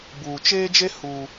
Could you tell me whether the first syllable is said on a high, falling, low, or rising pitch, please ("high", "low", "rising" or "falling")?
low